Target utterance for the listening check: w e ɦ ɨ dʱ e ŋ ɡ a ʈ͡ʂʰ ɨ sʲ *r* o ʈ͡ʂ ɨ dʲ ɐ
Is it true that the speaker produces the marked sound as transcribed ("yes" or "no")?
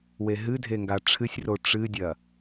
yes